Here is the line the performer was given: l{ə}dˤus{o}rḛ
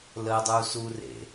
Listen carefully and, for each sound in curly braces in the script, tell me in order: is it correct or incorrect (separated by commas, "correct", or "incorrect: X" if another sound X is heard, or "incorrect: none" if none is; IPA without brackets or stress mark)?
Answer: correct, incorrect: u